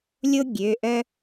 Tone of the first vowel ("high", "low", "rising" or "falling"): high